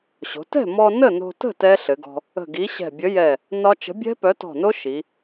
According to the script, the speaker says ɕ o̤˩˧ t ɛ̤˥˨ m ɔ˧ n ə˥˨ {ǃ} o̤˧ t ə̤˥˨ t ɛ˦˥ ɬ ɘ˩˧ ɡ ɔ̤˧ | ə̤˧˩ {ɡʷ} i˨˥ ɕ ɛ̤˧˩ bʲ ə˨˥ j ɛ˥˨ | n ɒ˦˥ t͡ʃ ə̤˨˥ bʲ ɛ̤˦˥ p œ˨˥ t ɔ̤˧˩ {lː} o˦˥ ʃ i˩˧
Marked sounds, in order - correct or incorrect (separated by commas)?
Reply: incorrect, incorrect, incorrect